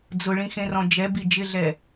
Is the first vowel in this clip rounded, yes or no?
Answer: yes